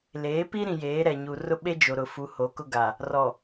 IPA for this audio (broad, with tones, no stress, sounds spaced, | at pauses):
l eː˨˦ p i˦ ɾ ĩ˨ j eː˨˦ ɾ ɛ˨ ɲ u˨ r ʊ˦ ɓ e˦ d͡ʒ o˨ ɾ ʊ˨ f u˨˦ h o˨˦ k ʊ˦ ɡ a˨ | r ɔ˨